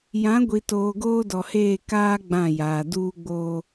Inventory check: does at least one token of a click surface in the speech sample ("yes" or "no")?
no